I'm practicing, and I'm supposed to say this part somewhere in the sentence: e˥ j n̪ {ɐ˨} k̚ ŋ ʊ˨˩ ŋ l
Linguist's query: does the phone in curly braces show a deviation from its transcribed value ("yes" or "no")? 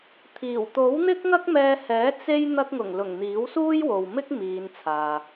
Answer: yes